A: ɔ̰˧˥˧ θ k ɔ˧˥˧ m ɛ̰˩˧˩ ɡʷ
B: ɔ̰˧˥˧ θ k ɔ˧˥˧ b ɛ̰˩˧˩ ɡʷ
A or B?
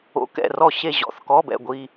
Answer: B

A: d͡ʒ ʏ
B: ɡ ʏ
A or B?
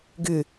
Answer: B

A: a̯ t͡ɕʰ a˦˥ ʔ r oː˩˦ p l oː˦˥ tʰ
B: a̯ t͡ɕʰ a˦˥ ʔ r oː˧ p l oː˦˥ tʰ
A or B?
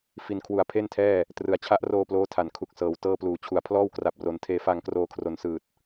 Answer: B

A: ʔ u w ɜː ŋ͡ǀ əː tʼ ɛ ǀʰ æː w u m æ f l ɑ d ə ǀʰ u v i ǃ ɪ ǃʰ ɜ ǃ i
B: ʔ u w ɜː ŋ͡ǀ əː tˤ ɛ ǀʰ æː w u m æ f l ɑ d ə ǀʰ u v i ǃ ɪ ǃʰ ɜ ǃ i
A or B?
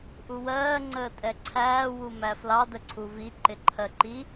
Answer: A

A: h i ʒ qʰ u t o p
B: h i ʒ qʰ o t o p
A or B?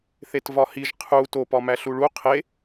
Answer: A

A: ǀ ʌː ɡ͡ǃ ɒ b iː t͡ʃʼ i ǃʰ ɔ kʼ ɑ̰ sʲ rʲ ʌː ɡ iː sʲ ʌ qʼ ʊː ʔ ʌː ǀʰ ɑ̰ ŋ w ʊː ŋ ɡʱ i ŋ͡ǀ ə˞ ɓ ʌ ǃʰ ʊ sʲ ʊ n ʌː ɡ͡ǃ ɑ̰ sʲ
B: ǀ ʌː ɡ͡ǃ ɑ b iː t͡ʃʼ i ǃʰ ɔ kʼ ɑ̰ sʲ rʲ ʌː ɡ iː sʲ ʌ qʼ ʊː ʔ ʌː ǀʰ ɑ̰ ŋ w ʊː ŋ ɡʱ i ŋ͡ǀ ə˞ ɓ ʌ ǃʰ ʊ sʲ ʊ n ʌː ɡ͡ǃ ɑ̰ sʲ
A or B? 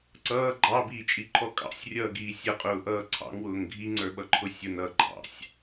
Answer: B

